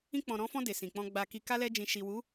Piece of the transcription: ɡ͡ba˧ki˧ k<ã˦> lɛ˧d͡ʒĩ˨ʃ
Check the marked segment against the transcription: incorrect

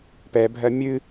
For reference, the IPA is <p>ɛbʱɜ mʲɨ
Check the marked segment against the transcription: correct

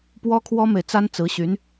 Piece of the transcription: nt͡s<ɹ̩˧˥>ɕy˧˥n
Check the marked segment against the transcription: correct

